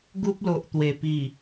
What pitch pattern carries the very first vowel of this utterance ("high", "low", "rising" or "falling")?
high